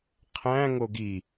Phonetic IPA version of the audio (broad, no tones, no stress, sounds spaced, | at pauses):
qʰ æ̃ ŋ o ɡ i